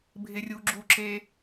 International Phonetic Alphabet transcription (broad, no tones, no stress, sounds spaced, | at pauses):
bʱ ɪ rʲ u ɡ͡ǁ u ǁ e